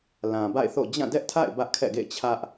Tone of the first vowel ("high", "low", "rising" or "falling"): low